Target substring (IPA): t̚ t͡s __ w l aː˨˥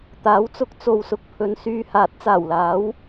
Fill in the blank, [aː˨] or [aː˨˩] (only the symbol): aː˨˩